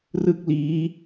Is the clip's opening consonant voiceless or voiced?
voiced